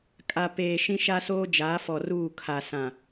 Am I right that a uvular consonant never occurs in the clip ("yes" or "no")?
yes